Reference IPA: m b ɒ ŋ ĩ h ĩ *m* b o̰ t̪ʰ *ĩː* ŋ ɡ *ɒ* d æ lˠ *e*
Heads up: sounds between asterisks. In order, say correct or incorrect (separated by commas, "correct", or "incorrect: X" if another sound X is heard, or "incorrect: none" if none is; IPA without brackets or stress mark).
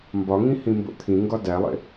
correct, incorrect: ĩ, correct, incorrect: ḛ